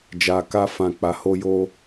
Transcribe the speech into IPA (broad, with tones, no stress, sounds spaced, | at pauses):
d͡ʒ a˨ k a˧ f ã˨ k͡p a˨˦ h o˦ j o˦